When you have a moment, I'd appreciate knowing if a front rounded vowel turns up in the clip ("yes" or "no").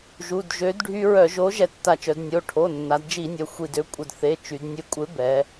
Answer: yes